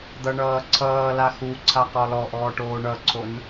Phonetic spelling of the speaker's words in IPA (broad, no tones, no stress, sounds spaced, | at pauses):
d̪ ʌ ɳ ʌː ǀʰ ʌː l a x u ǀʰ a q ɔ l ɔ ʔ ɔː ʈ oː ɳ ʌ ǀʰ o n